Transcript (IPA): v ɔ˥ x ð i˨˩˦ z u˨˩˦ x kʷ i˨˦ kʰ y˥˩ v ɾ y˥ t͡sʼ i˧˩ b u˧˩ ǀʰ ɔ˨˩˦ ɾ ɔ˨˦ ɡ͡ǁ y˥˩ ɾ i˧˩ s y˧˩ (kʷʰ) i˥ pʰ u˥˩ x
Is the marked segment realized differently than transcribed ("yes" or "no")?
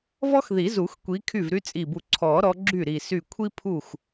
no